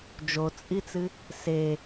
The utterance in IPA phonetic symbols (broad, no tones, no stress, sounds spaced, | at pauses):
d͡ʒ o t͡sʼ i t͡s ɨ | s e